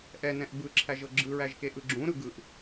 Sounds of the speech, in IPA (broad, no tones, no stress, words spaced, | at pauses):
ʔɛnɛ̃ʔ bɯǁʰæʒɤ ɡ͡ǁɯɹæʒkeʔɯ ɡ͡ǁũɾɯ ɡɯʔ